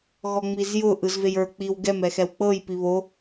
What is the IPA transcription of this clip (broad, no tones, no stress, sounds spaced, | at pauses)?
ɣ ɔ ŋ͡m i z j ʊ ʔ ɯ z v e j ə˞ k͡p i w ɡ ɛ m ɛ x ɛ w k͡p ɤ j p i β o